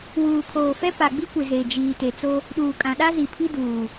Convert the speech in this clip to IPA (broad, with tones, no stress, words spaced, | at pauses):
wuː˨kʰoː˨fɛ˦ pa˨ɡ͡bi˦kʷɪ˨ ze˨d͡ʒiː˨te˨t͡so˦ | ɗuː˨kʼã˨ɗa˦ zi˨pʰi˦duː˨